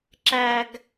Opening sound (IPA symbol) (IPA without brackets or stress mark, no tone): ǁ